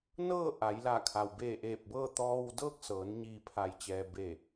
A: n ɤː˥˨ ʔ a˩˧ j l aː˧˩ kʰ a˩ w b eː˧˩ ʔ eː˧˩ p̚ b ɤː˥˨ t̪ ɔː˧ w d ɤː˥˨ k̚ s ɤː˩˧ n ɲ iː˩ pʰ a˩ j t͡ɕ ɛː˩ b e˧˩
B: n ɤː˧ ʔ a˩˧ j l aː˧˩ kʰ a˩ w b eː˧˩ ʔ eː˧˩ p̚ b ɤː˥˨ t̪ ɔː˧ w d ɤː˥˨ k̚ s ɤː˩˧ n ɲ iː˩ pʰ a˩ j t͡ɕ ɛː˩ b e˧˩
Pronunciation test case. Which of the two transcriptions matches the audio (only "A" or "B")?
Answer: A